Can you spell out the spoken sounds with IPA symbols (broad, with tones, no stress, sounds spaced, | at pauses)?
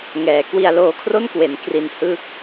ŋ ɛː˩˦ k w i˧ a̯ l oː˧ kʰ r o˥˩ n k w e˩˦ n k r i˧ n h ɯ˥˩ k̚